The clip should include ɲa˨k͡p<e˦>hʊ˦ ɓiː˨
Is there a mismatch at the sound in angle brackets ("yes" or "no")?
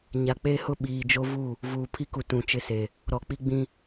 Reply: no